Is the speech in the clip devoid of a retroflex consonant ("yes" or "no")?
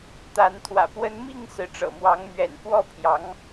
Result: no